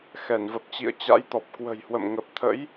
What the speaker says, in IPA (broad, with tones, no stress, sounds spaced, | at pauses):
x ɛ˧˩ n v ə˨˩ p̚ t͡ɕ ḭ˧˨ ə̯ t͡ɕ a̰˧˥ j t̪ ɔ˨˩ p̚ k w ə̤˨˩ j h w ə̰˧˨ m ŋ ə˨˩ p̚ t̪ʰ ə̰˧˥ j